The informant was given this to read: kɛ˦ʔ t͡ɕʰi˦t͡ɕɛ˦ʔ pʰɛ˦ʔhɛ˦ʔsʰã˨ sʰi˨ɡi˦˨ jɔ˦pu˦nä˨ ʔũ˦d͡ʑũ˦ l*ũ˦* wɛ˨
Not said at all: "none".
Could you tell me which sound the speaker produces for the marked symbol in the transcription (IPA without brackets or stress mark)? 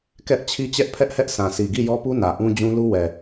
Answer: u˦